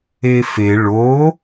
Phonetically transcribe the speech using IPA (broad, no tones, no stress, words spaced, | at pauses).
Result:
efe ɭo